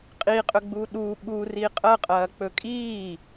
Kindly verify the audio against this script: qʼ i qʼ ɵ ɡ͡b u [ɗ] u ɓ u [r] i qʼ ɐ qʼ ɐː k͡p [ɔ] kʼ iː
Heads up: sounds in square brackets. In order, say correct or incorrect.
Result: correct, correct, incorrect: ɵ

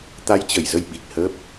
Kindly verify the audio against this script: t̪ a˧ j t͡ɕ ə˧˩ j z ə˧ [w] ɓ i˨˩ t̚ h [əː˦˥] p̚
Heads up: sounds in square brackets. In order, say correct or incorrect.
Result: incorrect: j, correct

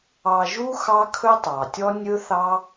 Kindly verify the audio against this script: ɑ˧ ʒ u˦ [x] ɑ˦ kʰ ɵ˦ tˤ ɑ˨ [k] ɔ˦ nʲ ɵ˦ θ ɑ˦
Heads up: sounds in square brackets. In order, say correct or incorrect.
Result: correct, incorrect: tʲ

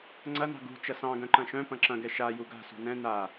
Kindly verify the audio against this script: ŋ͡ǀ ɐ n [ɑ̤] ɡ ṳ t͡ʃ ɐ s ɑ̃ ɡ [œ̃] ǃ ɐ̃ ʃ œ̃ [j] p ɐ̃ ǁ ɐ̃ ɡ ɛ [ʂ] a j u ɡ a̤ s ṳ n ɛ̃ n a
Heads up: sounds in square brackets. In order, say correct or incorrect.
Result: correct, correct, incorrect: none, incorrect: ʃ

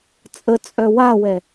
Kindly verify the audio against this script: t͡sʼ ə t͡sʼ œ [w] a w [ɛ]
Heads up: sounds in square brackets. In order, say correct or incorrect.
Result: correct, correct

